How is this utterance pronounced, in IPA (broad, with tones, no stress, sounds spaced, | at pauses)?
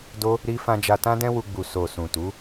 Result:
d o˦ | ɾ i˦ f ã˦ d͡ʒ a˧ t ã˦ d ɛ̃˦ w u˧ ɡ͡b u˨ s o˨ s ũ˨ t u˨˦